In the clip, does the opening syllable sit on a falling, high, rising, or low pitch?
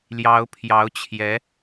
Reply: rising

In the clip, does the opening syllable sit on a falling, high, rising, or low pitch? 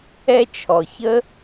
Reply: high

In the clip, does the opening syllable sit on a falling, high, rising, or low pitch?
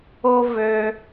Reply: high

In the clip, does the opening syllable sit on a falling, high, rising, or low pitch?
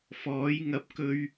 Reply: rising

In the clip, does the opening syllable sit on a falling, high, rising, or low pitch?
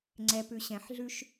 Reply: low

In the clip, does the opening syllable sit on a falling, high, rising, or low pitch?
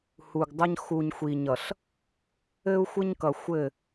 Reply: low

